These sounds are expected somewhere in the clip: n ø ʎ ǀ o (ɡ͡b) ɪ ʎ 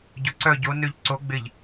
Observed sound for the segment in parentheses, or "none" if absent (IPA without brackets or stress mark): ɡ͡b